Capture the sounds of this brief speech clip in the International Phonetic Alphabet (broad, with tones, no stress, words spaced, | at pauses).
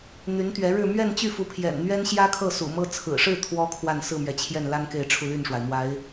n̪y˧˥nt̪ɥɛ˧˥ɻɻ̩˥˧ mɥɛ˥˧nt͡ɕy˥˩fu˧˥pʰjɛ̰˨˩n n̪ɥɛ˥nɕjä˥kʰɤ˥˩ sṵ˨˩mɤ˥ t͡sʰɹ̩˨˩ʂɻ̩˥˩ t̪ʰwɔ˥kʰwa˥˧n sɹ̩˥˩mɥɛ˩t͡ɕʰjɛ˥˩nla˥n ke˥˧ɪ̯ʈ͡ʂʰu˥˧ly˥˩nʂwa˩ɪ̯ mwa˧˥ɪ̯